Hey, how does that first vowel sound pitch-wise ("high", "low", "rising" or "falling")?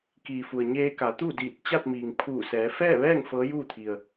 low